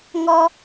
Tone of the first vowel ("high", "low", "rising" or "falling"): high